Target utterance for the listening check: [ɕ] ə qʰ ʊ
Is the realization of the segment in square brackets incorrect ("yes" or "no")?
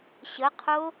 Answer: no